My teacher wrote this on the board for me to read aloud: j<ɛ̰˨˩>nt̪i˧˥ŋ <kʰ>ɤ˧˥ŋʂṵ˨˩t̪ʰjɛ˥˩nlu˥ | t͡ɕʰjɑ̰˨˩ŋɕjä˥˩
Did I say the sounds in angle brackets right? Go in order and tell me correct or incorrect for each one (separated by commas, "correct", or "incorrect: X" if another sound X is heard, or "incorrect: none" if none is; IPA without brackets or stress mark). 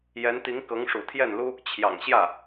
incorrect: ɛ˧˥, incorrect: k